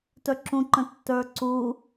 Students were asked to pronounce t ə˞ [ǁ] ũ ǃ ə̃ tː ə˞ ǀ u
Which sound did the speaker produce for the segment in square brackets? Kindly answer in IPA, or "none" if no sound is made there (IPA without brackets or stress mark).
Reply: ǁ